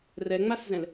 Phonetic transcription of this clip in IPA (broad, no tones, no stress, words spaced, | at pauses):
rɛŋ͡maszɛ̃l